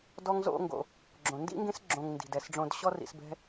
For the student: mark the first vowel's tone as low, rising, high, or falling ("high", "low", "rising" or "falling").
high